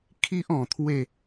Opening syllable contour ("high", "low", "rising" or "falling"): high